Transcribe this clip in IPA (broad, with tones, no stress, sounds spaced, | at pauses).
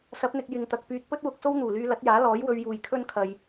s ɐ˨˥ p̚ n̪ ɪ˨ k̚ j ɪ˨ ŋ t̪ ɐ˨ k̚ p yː˧ t̚ p ɵ˥ t̚ w ʊ˧ k̚ s o˥ w n̪ uː˨˩ l yː˧ l ɐ˨˥ t̚ j aː˨˥ l ɔː˨˥ j w ɵ˧ ɥ j uː˨ j kʰ ɵ˥ n kʰ ɐ˨ j